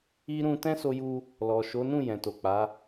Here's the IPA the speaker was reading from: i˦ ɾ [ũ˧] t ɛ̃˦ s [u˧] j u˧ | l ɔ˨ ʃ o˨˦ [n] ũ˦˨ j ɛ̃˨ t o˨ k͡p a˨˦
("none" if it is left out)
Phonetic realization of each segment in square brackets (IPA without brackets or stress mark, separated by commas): ũ˧, o˧, n